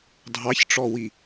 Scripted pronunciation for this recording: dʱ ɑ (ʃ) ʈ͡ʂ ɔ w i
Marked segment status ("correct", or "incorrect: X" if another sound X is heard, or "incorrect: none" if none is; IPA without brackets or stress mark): incorrect: ç